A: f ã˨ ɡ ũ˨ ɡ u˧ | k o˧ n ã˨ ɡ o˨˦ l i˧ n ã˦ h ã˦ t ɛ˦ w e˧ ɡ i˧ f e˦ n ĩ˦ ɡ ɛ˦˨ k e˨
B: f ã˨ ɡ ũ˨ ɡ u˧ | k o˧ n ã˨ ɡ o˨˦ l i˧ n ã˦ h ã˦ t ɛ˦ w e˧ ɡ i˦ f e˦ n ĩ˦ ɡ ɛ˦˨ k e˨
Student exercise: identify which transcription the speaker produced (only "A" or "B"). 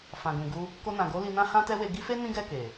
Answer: B